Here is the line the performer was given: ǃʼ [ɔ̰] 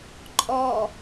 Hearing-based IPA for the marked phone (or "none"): ɔ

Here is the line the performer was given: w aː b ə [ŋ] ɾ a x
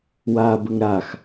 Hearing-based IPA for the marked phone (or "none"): ŋ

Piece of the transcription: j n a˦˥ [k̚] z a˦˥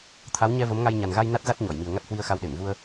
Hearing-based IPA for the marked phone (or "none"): t̚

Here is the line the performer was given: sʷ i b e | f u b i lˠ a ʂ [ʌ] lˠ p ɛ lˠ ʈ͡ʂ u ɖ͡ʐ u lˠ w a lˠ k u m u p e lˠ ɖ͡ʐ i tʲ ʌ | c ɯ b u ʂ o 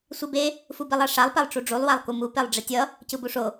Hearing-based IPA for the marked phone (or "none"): a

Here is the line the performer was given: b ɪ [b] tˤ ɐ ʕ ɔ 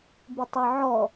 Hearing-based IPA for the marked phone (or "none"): none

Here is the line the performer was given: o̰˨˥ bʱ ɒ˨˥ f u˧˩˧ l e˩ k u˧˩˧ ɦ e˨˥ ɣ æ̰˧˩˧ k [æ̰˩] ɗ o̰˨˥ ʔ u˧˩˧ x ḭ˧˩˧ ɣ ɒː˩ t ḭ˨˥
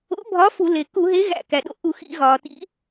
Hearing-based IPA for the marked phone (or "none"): æ˩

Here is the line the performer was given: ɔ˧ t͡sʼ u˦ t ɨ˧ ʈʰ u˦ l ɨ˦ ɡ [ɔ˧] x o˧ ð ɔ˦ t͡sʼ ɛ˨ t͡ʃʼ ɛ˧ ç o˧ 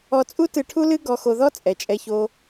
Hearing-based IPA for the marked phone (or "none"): ɔ˧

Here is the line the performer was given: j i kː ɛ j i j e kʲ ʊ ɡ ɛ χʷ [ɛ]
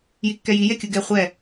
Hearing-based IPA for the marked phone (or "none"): ɛ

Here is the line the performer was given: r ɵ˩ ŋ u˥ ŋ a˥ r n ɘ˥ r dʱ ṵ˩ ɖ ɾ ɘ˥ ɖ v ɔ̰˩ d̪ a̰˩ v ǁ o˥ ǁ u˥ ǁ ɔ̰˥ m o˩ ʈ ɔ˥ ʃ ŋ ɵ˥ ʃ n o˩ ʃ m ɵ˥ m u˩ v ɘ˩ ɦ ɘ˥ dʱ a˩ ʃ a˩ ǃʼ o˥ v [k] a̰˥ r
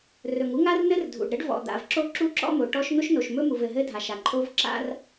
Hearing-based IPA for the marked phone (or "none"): ǁ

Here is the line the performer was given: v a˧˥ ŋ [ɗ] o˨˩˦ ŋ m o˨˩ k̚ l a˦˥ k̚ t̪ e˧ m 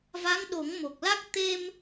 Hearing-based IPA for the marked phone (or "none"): ɗ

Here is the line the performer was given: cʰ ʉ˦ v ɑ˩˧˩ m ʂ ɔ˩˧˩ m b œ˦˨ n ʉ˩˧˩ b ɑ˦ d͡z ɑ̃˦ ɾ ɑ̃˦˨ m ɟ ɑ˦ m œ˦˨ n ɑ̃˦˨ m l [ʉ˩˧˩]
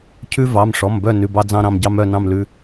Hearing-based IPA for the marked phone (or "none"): ʉ˩˧˩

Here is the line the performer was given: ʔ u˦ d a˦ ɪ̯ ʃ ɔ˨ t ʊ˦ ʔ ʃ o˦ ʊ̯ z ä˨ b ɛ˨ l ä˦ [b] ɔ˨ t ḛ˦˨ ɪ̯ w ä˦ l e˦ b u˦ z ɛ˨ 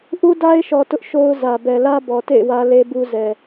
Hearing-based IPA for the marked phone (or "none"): b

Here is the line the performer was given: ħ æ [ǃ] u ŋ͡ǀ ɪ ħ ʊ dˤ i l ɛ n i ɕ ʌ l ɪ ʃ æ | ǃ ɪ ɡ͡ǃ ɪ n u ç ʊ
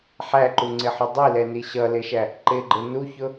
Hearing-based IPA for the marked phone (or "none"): ǃ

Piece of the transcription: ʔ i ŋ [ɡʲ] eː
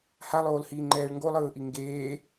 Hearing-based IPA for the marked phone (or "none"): ɡ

